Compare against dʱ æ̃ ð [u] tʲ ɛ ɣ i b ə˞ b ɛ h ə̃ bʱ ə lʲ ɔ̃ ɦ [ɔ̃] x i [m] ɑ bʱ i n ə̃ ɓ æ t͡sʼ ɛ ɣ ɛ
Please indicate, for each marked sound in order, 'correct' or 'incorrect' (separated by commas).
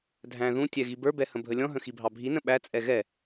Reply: incorrect, incorrect, incorrect